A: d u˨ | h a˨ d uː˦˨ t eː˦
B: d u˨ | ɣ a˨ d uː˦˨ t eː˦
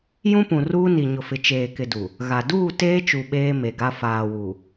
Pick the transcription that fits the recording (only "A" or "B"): B